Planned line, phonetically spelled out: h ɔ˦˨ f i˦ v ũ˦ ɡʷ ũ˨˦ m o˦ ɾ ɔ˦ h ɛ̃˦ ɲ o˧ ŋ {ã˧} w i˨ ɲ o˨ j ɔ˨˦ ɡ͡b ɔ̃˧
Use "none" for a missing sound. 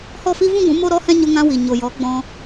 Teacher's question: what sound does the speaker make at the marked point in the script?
ã˧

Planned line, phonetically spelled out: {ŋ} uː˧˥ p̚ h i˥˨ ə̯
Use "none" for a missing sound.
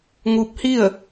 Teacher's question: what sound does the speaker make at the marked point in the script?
ŋ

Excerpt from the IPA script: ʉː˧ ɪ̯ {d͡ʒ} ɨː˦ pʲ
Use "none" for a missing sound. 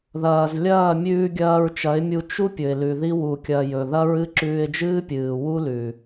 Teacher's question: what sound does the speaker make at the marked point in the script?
d͡ʒ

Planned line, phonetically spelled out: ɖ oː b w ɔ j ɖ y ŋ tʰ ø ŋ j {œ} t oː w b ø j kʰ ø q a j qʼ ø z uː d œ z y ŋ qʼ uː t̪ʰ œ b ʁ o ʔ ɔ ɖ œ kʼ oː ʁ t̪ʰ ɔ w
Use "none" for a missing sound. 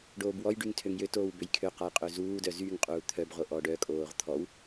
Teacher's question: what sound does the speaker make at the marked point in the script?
ø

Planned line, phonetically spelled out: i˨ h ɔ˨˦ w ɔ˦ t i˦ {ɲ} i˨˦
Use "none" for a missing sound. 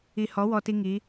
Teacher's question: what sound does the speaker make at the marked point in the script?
ŋ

